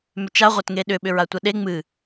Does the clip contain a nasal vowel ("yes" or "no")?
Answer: no